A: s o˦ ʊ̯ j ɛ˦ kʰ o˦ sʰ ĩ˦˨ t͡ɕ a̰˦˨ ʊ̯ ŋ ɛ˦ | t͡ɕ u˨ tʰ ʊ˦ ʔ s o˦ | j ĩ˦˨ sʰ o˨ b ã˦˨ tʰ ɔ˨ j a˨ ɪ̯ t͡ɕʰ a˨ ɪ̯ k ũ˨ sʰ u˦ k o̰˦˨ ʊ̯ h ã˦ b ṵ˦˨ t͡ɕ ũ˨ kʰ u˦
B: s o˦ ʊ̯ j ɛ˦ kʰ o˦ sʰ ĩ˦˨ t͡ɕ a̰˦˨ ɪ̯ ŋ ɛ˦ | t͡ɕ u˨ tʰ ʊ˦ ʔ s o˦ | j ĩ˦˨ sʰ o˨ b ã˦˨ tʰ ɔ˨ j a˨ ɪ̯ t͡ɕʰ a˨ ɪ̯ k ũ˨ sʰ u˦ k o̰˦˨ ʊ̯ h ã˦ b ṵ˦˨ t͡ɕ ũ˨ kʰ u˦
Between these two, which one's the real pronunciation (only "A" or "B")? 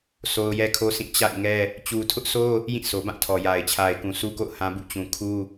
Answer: B